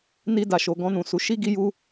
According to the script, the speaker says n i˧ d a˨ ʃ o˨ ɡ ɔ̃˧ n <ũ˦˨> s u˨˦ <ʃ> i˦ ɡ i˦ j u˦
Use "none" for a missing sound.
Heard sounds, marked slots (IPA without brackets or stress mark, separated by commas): ũ˨, ʃ